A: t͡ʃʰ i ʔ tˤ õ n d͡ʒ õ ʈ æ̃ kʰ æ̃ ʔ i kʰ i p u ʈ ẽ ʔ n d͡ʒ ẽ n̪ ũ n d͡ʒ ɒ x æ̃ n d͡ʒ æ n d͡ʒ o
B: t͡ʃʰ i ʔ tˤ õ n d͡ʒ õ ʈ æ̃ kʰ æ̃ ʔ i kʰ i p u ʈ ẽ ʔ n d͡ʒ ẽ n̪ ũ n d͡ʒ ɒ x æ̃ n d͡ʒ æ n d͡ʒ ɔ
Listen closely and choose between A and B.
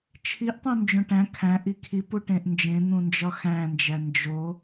A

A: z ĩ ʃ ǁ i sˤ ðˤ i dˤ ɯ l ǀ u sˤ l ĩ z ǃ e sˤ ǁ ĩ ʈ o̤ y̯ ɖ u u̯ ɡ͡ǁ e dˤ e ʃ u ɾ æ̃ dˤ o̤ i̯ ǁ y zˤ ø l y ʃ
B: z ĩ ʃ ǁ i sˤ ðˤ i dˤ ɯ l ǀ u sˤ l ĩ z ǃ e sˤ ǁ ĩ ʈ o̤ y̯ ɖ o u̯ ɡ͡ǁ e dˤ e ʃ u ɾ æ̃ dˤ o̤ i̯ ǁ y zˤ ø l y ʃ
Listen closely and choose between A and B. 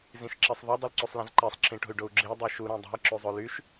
B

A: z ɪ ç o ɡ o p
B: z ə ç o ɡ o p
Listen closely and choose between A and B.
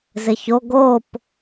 A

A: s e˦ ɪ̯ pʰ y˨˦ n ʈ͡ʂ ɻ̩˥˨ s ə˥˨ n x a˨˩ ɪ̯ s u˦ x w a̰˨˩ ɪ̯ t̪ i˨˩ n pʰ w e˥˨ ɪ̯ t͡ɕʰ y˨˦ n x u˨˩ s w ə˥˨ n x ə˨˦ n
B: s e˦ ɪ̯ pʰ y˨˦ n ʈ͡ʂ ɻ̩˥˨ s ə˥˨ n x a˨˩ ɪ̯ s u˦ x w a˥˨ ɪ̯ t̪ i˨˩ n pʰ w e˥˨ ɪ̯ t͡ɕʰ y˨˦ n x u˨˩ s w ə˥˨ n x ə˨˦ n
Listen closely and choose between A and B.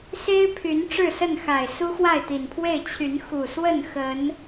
B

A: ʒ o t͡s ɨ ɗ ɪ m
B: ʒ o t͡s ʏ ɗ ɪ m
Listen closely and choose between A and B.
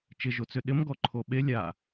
B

